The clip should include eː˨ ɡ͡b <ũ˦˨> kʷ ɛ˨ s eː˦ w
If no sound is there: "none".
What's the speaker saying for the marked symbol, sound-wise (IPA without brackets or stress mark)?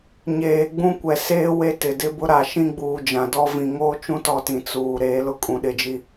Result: ũ˦